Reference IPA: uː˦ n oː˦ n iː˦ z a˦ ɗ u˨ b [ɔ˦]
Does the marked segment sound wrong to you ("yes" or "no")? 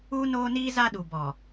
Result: yes